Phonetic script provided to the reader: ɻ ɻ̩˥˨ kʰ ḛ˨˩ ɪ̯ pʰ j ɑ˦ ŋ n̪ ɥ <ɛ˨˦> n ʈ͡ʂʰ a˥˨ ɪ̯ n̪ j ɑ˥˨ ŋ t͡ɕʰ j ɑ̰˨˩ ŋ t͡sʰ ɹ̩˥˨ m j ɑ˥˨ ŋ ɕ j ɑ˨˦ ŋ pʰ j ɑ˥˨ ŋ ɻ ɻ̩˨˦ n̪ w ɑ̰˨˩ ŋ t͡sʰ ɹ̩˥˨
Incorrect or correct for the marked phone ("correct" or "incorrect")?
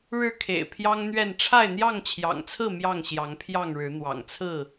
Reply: incorrect